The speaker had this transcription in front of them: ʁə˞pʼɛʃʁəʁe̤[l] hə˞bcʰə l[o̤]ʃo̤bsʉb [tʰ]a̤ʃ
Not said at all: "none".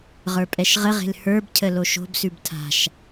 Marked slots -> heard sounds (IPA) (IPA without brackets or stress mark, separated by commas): l, o, tʰ